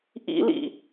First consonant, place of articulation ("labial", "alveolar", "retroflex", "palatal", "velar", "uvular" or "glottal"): glottal